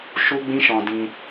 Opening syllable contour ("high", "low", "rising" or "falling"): high